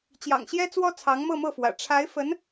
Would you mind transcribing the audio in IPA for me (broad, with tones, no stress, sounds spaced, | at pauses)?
t͡ɕ j ɑ̰˨˩ ŋ ɕ j ɛ˥ t͡s w ɔ˥ t͡sʰ ɑ˧˥ ŋ m ɤ˥˧ m ɤ˥˩ f w ä̰˨˩ ʈ͡ʂʰ a˧˥ ɪ̯ f ə˧˥ n